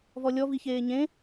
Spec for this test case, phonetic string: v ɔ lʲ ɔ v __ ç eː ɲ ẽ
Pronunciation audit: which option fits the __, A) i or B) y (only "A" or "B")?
A